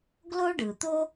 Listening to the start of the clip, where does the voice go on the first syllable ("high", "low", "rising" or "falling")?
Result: high